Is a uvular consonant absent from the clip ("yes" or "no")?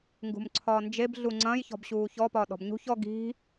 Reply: yes